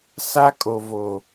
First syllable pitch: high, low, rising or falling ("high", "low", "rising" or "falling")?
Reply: high